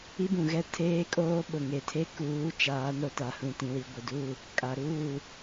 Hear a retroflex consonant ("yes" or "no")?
no